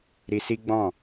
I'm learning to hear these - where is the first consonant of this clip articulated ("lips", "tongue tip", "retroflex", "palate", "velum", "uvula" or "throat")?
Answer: tongue tip